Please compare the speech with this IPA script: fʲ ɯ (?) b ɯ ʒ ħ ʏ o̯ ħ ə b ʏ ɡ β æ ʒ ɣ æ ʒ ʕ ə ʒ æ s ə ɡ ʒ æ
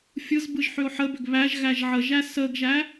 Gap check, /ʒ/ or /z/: z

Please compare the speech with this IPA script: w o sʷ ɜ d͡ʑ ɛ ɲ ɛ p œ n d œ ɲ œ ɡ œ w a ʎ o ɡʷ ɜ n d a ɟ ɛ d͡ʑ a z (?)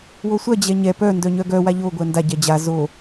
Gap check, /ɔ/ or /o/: o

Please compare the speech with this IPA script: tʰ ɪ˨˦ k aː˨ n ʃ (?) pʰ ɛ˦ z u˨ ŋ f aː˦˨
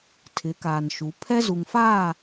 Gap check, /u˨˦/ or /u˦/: u˨˦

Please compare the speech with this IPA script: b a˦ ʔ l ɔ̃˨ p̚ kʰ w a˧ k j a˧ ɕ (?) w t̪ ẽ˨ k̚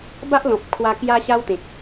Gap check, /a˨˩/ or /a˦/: a˦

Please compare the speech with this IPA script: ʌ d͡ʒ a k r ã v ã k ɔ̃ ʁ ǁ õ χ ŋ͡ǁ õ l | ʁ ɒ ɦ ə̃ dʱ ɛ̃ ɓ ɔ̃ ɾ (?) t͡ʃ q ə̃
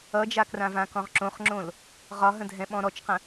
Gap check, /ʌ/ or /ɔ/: ɔ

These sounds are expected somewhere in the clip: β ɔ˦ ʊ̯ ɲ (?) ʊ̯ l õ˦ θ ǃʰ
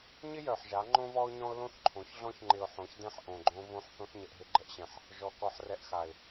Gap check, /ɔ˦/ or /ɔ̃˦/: ɔ̃˦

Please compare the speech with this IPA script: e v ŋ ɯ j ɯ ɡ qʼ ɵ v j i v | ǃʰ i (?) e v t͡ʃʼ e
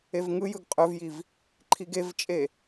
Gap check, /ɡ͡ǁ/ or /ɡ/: ɡ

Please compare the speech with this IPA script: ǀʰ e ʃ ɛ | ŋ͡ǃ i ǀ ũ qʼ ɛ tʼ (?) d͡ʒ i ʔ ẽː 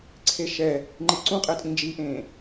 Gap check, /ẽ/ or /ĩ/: ĩ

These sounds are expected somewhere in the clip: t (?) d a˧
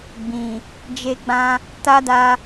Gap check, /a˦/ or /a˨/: a˦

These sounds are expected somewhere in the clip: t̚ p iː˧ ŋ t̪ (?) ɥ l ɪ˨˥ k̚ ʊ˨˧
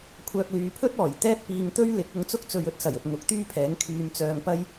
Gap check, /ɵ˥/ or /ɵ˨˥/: ɵ˥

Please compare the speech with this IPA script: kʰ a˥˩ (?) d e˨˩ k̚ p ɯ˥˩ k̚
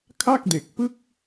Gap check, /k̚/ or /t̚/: k̚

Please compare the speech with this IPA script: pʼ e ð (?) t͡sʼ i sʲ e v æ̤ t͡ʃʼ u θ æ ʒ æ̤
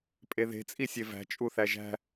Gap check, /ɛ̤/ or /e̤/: e̤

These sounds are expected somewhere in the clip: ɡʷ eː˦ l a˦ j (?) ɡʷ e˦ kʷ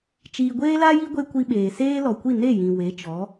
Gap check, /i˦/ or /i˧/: i˦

